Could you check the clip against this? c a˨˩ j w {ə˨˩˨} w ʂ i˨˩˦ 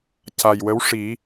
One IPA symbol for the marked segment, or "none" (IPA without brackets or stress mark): ə˧˥